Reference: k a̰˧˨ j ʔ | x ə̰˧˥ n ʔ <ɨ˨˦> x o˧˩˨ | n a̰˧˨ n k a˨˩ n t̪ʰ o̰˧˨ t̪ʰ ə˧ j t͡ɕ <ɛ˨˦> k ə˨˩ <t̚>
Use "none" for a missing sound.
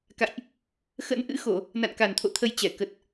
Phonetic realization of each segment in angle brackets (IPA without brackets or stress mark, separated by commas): ɨ̰˧˥, ɛ˧˩, t̚